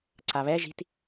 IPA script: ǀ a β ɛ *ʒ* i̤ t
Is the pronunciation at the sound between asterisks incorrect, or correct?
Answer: correct